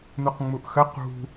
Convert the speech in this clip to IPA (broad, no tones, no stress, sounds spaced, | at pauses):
n u q ŋ͡m u ʔ x ə q ṳ